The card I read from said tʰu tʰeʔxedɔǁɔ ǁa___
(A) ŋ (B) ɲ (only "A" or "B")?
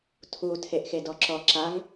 A